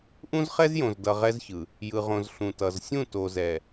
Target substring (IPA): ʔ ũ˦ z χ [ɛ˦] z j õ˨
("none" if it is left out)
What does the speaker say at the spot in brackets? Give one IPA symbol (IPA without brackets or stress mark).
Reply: ɛ˦